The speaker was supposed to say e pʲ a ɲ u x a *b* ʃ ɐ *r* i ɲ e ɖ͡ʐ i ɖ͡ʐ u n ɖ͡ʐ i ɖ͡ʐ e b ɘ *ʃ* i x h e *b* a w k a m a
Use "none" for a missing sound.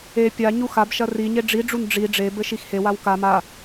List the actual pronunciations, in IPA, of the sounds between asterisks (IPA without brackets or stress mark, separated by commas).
b, r, ʃ, w